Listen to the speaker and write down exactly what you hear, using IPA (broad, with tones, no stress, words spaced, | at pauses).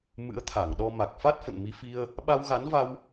mɨ̰˧˥ə̯t̪ʰa˧˩ŋ ɗɔ˧ma˨˩k̚fa˦˥t̚ fə̰˧˨nmi˨˦fi˧ə̯ | ɓa˧wɣa˨˦nva˧w